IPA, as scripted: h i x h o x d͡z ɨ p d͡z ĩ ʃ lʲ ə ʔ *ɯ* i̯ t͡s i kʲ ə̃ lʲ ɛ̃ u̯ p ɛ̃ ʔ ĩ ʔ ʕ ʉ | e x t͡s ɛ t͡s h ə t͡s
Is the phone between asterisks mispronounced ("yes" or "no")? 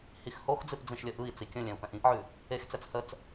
no